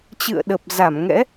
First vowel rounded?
no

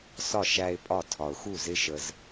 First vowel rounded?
yes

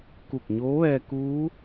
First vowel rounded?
yes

